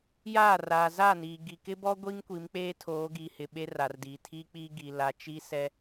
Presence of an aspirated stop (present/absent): present